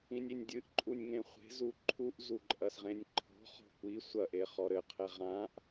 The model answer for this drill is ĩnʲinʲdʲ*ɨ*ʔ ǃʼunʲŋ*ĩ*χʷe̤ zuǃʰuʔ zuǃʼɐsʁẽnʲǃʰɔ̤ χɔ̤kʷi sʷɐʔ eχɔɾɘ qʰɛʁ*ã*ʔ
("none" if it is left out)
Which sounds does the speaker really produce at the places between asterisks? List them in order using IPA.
ɨ, ẽ, ã

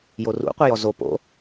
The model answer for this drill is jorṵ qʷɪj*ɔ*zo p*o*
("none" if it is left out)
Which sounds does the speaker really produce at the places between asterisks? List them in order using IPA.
ɔ, o̰

